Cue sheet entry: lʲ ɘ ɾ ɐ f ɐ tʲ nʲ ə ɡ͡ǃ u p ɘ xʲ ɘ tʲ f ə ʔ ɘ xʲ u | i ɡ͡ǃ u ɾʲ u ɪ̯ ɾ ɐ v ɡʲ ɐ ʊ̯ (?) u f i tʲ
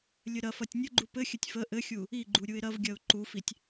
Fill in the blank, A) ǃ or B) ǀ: A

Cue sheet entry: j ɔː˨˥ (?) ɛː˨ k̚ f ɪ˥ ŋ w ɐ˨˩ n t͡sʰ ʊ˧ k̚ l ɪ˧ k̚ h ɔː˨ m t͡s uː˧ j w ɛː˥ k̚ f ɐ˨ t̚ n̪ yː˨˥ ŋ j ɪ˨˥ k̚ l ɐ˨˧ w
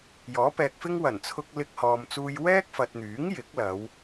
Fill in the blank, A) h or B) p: B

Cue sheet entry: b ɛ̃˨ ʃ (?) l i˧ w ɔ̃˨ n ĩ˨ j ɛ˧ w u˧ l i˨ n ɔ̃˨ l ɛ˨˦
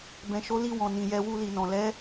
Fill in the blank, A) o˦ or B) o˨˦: B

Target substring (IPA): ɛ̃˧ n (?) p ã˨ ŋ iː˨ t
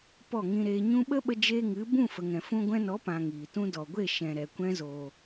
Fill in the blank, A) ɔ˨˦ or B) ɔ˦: A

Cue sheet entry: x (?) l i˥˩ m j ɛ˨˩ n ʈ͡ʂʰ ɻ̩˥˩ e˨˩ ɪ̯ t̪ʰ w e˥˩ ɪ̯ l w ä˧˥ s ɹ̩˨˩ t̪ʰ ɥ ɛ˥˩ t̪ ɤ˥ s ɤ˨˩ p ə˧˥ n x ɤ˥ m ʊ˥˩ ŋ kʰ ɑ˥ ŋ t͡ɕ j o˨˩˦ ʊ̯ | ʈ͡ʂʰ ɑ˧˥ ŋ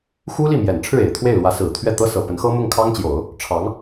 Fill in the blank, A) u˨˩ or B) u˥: B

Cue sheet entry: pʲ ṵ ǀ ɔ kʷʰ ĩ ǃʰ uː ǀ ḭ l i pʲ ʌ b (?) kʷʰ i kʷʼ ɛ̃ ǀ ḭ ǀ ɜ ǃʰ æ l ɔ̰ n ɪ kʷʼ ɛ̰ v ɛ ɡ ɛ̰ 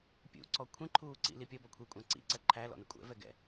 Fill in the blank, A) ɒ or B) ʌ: A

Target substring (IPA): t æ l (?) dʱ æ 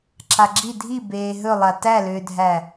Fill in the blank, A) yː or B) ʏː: B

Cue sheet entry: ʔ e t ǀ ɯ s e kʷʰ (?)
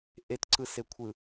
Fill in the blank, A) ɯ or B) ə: A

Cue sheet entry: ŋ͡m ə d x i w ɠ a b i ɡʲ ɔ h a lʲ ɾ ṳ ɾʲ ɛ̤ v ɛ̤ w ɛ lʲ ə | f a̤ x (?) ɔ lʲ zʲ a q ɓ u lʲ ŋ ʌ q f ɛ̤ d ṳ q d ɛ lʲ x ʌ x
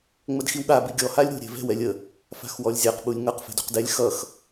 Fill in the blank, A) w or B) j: A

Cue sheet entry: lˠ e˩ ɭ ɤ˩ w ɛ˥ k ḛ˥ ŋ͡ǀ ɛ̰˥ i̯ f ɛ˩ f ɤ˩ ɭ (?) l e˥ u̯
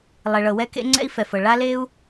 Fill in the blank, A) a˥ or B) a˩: A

